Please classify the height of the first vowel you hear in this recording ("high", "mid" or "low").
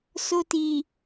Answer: mid